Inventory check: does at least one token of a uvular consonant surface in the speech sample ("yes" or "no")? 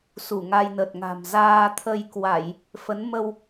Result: no